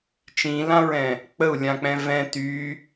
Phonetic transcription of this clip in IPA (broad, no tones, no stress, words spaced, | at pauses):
t͡ʃĩlãɹɛ̃ | k͡pəu̯lʲãk͡pɛ̃ vɛ̃ ty